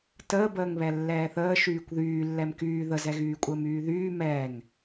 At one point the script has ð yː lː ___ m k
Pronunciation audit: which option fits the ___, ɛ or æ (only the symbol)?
ɛ